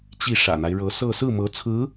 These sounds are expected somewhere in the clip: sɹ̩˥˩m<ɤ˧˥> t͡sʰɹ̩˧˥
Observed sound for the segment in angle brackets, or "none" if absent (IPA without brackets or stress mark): ɤ˧˥